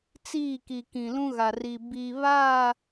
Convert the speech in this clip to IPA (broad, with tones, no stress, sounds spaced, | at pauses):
t͡s iː˦˨ k i˨ k ĩ˨ l ũ˦ ɣ a˨ r i˨ b i˨ β a˦˨